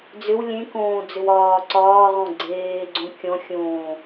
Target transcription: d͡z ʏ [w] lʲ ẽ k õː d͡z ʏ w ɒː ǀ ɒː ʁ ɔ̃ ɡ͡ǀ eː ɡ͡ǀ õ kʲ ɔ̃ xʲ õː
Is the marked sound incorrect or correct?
correct